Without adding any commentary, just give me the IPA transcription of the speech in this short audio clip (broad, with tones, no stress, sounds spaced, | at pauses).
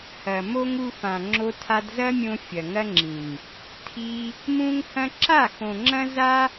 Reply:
h ɐ˨ m o˦ ŋ u˧ f ã˨ ŋ͡ǁ o˧ tʰ a˧ d z ɐ˦ mʲ õ˧ fʲ ɐ˨ ŋ ɐ˦ ŋ͡ǁ ĩ˨ ŋ | tʰ i˧ | m ũ˦ ŋ h ɐ̃˦ ǁ a˦˨ x õ˨ ŋ͡ǁ ɐ̃˦ z a˦